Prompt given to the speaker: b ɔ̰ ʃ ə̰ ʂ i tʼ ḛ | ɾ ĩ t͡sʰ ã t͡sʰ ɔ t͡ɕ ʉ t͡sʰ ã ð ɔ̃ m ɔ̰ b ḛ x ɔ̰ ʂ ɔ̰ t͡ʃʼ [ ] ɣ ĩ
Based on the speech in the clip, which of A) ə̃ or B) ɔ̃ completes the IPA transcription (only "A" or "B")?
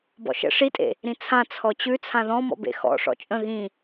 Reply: A